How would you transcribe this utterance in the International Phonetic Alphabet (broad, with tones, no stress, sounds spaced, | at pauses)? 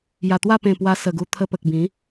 j a˨˩ t̪ w a˥˧ p ẽ˨˩ p w a˧ s ə˨˩ ɡ u˧ t̪ʰ ə˧ p ə˨ k̚ b ĩ˨˦